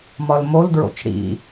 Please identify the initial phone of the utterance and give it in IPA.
m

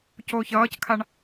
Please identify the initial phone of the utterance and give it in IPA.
c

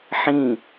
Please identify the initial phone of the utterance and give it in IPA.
ħ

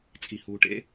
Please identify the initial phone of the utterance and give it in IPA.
t͡sʼ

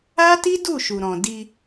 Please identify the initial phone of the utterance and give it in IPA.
a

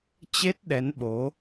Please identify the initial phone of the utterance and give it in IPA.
t͡ɕ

